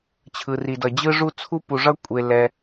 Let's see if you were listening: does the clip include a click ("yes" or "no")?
no